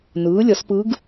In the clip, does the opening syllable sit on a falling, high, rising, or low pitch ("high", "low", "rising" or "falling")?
rising